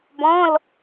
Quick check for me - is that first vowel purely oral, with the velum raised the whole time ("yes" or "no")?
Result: no